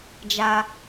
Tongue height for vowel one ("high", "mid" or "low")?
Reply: low